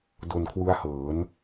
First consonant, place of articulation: alveolar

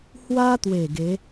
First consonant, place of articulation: glottal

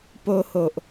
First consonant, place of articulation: labial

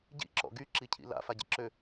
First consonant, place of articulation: palatal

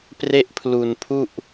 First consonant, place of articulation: labial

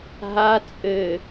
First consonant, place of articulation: glottal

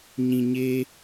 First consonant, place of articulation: palatal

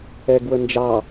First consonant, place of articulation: velar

